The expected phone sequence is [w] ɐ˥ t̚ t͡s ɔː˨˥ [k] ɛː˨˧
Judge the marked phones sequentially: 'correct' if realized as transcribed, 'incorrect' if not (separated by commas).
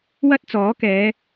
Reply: correct, correct